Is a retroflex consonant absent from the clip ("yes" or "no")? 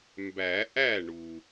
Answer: no